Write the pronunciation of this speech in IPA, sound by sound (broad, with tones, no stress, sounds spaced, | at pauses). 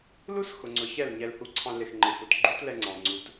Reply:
l u˦ s x ʊ˨ ŋ͡ǀ ʊ˨ ç ɛ˦˨ l ɲ ɛ˧ l h u˧ ǀʰ ɑ̃˧ l ɪ˨ x ŋ͡ǃ ɪ˨ f ʊ˨ t ɡ͡ǃ u˦ t l ɛ˧ ŋ͡ǀ ɑ̃˨ ŋ͡ǀ u˧ t